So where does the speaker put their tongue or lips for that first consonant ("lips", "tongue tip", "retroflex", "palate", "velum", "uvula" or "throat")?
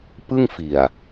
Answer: lips